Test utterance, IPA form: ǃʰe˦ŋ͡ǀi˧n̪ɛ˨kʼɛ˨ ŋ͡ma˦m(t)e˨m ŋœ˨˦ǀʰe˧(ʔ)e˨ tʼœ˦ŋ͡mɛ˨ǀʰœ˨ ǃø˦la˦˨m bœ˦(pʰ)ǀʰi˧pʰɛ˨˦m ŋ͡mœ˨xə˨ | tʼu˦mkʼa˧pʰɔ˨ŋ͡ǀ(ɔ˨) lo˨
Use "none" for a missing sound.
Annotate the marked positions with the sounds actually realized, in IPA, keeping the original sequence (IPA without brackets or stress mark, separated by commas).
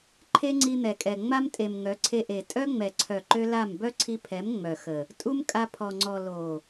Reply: tʼ, ʔ, none, ɔ˨